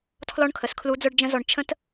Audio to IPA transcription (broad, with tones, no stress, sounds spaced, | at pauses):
tʰ l ɔ˥ ɳ kʰ ə˩ s kʰ l u˧˥ d͡z œ˥ ɖ d͡ʒ ə̃˥ z ɔ˧ ɳ t͡ʃʰ ə̃˥ t